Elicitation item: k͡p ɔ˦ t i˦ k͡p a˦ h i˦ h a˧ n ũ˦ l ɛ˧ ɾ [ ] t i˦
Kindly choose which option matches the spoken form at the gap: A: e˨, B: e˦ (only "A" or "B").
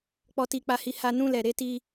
B